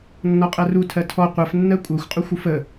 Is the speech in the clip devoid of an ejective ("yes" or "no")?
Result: no